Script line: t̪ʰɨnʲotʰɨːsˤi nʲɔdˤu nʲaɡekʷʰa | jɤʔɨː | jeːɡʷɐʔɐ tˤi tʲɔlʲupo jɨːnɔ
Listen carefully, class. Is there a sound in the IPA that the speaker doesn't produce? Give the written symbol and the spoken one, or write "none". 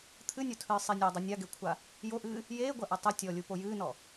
ɤ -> o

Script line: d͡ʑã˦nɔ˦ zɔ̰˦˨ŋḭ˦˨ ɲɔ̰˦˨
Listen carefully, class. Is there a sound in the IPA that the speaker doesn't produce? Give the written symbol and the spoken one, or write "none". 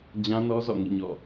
none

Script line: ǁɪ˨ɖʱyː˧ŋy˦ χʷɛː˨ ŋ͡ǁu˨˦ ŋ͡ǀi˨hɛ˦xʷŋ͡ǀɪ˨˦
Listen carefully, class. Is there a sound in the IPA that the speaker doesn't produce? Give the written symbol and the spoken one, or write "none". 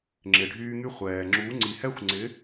ǁ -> ŋ͡ǁ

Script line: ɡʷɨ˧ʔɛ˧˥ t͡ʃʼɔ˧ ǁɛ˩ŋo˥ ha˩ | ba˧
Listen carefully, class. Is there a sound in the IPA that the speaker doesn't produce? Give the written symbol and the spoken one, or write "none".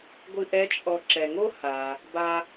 none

